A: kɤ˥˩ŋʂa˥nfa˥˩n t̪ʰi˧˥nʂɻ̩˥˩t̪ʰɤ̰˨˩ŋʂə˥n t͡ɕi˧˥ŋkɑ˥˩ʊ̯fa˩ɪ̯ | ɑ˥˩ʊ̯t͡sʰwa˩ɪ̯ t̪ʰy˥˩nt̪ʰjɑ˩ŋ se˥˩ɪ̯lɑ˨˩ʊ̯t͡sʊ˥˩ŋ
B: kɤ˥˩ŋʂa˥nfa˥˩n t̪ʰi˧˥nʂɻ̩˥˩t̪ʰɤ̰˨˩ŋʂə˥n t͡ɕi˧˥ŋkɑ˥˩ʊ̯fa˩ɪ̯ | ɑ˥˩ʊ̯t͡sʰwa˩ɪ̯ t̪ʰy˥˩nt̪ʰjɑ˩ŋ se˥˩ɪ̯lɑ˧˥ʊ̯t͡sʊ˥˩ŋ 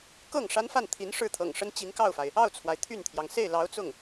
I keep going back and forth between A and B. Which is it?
B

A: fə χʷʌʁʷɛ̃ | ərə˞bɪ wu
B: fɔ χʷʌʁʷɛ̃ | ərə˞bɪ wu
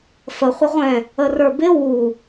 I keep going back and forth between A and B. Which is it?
A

